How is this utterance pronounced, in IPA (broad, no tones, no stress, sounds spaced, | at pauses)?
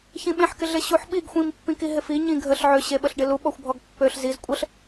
ç ĩ ɓ ẽ ħ k ɪ ɮ e ɕ u ħ ɓ i ɡ xʷ ĩ m pː ĩ k i ɦ ɪ f i ɲ ĩ ɡʱ ə ɬ ʕ ø ɕ e ɓ ə ɬ ɖ ɪ l u ɓ ɔ xʷ bʱ ɔ ɡ pː ø ɬ z i z kʷʼ ə ɬ